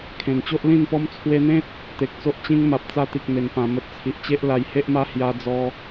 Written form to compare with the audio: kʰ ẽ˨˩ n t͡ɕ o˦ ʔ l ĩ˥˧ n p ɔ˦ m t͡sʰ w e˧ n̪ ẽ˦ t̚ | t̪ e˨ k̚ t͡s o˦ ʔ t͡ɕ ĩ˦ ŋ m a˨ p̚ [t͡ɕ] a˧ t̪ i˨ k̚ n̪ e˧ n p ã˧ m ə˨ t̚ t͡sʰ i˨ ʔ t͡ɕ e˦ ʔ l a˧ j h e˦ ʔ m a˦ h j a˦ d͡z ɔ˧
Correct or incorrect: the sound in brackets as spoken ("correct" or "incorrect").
incorrect